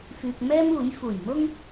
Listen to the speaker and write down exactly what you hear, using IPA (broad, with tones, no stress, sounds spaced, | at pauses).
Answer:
f yː˧ k̚ m ɛː˥ m uː˨˥ j f uː˨˩ j m ʊ˥ ŋ